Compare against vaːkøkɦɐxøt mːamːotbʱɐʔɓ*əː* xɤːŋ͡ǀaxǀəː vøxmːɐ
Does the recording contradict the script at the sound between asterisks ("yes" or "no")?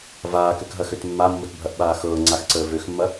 yes